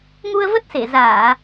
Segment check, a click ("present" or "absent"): absent